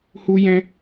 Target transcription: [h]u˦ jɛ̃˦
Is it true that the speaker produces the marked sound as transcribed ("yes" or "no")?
yes